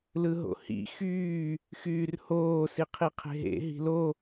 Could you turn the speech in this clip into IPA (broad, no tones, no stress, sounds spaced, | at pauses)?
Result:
l ɯ ɦ o̰ h ḭ x yː | x yː r h oː s i qʰ i qʰ e̤ ɦ ḛ ɦ i̤ l o